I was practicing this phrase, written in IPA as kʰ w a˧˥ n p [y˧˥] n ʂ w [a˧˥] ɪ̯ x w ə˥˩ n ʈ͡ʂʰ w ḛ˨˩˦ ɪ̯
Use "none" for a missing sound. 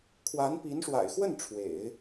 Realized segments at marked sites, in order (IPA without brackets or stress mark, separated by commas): i˧˥, a̰˨˩